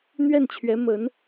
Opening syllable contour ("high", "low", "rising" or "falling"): falling